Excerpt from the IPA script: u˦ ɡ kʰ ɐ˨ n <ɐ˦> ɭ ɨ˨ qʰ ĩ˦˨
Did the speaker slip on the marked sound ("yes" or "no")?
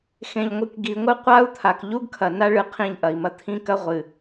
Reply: yes